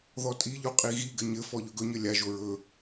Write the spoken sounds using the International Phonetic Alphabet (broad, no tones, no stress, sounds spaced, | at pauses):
ð ɔ tʼ i ʎ o qʼ i ɣ i ɡ ɘ ɲ ɘ f ɔ ʎ ɵ ɡ ɵ ɲ ɘ lʲ a ʒ o ɹ ɵ